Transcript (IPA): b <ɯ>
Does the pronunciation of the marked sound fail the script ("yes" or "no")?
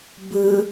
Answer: no